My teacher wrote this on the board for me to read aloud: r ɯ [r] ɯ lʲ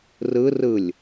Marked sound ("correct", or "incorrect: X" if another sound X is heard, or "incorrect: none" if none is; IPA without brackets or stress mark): correct